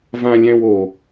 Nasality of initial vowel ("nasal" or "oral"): nasal